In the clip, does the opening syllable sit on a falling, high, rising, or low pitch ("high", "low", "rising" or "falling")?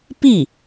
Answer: falling